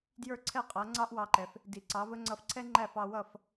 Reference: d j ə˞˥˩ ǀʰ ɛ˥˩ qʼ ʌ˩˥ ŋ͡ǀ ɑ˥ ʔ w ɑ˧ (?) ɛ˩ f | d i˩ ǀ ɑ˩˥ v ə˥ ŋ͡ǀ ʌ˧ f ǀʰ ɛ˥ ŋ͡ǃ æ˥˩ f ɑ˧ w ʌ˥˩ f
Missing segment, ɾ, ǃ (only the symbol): ǃ